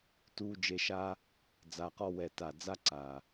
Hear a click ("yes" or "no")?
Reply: yes